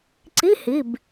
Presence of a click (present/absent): present